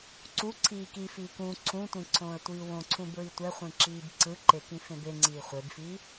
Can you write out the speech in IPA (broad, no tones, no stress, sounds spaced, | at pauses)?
ǀ u ǀʰ iː k i f iː k ũ ǀʰ ũ tʷ ĩ ǀʰ õː ə̯ tʷ iː w õ ǀʰ ũ b ɹ i tʷ ɛ χʷ ĩ ǁ iː b ǀ ɯ ǃ e k ĩ f ẽ b e ŋ͡ǀ iː χʷ e b f i